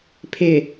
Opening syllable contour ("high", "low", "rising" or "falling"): low